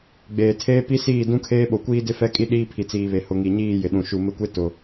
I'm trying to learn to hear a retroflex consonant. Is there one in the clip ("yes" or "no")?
no